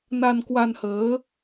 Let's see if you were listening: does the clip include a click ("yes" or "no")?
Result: no